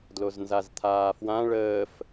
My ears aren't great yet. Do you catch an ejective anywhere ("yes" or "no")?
no